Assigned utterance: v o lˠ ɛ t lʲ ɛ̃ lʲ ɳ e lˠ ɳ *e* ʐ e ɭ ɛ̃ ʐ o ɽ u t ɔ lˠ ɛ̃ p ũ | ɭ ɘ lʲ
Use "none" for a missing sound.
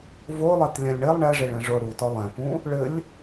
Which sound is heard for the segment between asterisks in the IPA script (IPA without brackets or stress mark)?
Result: ɛ